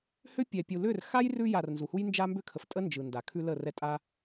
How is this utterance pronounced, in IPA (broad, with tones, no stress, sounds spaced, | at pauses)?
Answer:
h ʏ˦ pʲ ɛ˨ pʲ u˨ l ʏ˦˨ r x a˦ j r ʉ˧ j a˨ r n z u˨ h u˦ j n d͡ʒ a˦ m b ʏ˦ kʰ ə˨ f tʼ ə˦ n d͡ʒ ɯ˨ n d a˨ kʰ ʉ˦ l ə˦˨ r ɛ˧ tʼ a˦